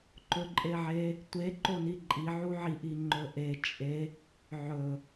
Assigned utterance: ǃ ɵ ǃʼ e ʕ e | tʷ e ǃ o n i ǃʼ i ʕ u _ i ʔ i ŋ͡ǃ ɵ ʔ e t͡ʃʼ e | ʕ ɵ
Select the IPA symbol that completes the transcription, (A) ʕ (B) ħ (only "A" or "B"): A